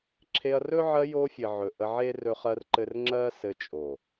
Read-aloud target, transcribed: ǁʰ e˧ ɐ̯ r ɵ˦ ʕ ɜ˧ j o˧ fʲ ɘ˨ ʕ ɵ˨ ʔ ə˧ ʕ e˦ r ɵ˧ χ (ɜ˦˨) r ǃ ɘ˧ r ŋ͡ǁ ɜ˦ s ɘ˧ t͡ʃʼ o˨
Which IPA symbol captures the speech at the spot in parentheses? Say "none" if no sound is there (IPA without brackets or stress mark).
ɜ˧